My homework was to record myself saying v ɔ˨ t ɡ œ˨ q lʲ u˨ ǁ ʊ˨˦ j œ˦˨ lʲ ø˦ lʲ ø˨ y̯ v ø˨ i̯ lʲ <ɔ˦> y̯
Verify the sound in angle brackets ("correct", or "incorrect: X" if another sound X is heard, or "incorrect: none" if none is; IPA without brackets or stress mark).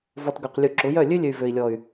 incorrect: ɔ˨